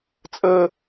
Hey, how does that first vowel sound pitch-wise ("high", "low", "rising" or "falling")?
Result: high